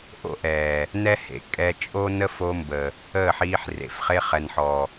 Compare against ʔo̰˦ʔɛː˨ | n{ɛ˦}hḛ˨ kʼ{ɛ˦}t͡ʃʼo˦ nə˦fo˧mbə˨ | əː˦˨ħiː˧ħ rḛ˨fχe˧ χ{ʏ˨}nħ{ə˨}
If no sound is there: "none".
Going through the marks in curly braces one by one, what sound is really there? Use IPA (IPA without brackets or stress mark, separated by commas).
ɛ˦, ɛ˧, ɛ˨, ɔ˨